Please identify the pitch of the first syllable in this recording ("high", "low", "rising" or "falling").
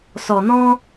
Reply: low